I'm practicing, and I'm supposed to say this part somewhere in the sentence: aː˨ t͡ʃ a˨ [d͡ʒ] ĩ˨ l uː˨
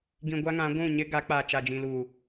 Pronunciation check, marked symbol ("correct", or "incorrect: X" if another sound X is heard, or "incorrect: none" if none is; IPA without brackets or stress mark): correct